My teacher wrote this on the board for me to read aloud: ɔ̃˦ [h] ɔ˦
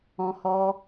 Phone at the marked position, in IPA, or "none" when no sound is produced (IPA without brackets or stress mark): h